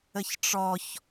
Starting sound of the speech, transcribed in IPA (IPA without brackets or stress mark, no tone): ə